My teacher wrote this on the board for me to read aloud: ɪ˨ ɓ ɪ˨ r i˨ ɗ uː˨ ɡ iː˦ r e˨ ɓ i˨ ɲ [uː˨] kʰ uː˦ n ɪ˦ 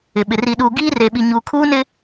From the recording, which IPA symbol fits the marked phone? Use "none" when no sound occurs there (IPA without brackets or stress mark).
uː˨